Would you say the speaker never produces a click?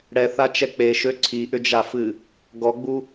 no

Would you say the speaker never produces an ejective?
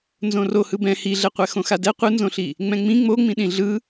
yes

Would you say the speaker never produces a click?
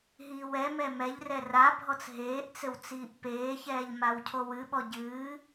yes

